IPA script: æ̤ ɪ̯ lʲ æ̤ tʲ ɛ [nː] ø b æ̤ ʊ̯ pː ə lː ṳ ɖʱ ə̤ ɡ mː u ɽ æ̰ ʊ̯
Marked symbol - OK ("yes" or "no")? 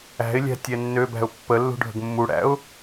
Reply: yes